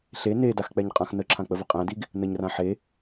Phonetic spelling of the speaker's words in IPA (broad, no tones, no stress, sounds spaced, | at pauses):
ɬ e n e d a x k͡p ɛ ɲ qʼ ã x n ə ǁʰ ã k͡p ə v ə qʼ æ̃ d i ɡ | n ə ɲ r ã ħ e